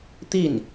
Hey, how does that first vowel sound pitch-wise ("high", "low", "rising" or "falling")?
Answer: falling